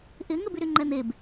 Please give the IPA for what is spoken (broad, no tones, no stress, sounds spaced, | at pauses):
ʔ ɪ ŋ ə b y ɾ y ŋ͡ǃ ɛ n̪ e b